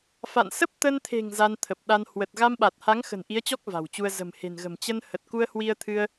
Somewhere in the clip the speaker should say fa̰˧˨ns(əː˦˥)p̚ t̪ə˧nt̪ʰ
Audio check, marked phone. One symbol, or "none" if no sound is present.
ə˦˥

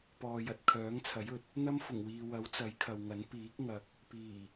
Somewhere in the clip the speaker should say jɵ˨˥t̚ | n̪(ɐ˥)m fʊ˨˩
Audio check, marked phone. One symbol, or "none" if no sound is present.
ɐ˥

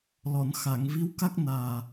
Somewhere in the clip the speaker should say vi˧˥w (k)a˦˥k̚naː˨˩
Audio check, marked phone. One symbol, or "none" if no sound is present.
k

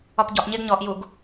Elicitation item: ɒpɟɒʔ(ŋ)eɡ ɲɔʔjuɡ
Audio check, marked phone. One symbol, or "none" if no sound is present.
ɲ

